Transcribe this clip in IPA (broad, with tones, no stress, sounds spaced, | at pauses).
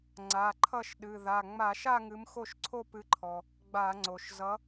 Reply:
ŋ͡ǀ a˩˧˩ ǃʰ ʌ˥˧ ʃ ɗ ɨ˩˧˩ ð a˩˧˩ ŋ͡m a˧˩˧ ʃ a˥˧ ŋ ɨ˨˥ m x o˥˩ ʃ ǀʰ o˥˧ p ɨ˨˥ ǃʰ ɔ˩ | ɡ͡b a˧˩˧ ŋ͡ǀ o˩ ʃ z ʌ˨˥